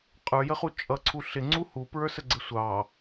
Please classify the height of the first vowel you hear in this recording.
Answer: mid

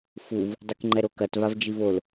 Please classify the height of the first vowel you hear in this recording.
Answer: high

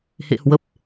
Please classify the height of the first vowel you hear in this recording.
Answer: mid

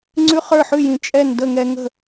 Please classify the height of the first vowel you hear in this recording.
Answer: high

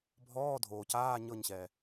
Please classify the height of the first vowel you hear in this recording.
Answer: mid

